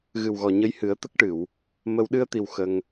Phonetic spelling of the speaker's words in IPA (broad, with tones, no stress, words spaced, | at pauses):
ɣɨ˨˩wɣɔ˨˩ɲə˧jhɨ˨˩˦ə̯ t̪ə˦˥k̚ʈɨ˨˩˨w | mə˧w ɗɨ˧ə̯t̪i˨˩w xə˧ŋ